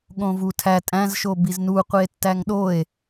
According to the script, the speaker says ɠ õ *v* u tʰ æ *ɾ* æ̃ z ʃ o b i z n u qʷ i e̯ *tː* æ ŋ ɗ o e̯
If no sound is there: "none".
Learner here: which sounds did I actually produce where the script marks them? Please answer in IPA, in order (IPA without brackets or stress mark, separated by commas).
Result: v, tʼ, tː